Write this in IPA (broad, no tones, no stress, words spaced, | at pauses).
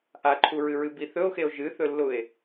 ʔaǃʰuɹɨɹɨ biθɵo̯xeo̯ ʒɨθɵlːʊe̯